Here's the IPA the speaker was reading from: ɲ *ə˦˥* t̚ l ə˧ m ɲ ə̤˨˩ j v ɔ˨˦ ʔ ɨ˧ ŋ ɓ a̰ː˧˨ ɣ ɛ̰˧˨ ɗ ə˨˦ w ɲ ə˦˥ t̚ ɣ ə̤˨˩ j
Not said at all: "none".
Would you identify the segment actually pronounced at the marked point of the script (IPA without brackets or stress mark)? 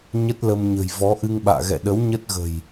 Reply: ə˦˥